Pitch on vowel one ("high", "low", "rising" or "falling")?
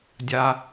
high